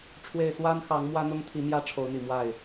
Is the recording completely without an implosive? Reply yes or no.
yes